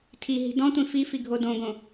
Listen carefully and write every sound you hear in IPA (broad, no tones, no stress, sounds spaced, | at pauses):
tʰ i ɦ i̤ d ɔ̃ tʷ ĩ f i f i ɡʱ o d õ ɡ õ